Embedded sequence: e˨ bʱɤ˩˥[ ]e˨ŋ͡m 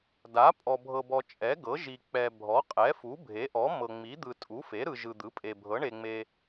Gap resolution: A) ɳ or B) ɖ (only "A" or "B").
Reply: A